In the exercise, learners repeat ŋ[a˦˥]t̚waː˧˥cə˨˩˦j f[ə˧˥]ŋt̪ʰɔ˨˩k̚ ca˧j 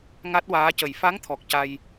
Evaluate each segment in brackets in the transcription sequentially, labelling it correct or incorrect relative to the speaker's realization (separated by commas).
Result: correct, incorrect